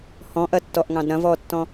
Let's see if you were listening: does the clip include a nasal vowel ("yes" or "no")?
yes